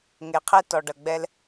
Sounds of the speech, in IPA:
ŋ e˩ qʰ ɛ˧ t ɔ˩ ɖ ɐ˩ ɡ͡b ɛ˧ l

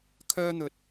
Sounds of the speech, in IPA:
kʰ œː˥ n̪ ɵ˧ t̚

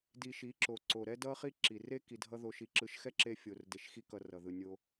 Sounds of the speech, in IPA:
d i˨ ʃ i˨˦ ǁ o˨ ǀ o˨ ɾ ɛ˦ d ʌ˦ χ i˦ ǁ i˨ r e˦ k i˨ dʱ ʌ˧ ð o˧ ʃ i˧ ǁ ɯ˧ ʃ x ɛ˦ ǁ e˧ fʲ o˨ r d e˨ ʃ x i˧ k ʌ˨ r ʌ˨ ð ɯ˨ nʲ o˧

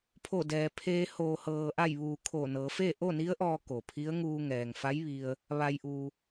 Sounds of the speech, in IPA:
pʰ o˧˩ d ɛː˩ pʰ eː˧ h oː˩ h ɤː˩ ʔ a˧˩ j ʋ uː˩ kʰ o˧˩ n ɤː˩˧ f eː˥˨ ʔ o˥˨ n i˧˥ ə̯ ʔ ɔː˧ k o˩ pʰ i˧˥ ə̯ ŋ uː˧ ŋ ɛː˩ ŋ f a˧˥ j ʋ i˧ ə̯ | ʋ a˩ j ʔ uː˩

